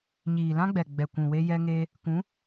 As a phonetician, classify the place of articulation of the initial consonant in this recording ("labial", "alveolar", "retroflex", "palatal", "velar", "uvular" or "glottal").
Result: palatal